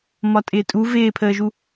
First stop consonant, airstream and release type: ejective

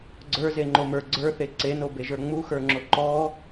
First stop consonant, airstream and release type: click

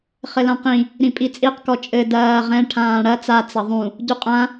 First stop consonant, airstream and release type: plain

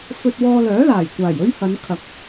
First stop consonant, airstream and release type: plain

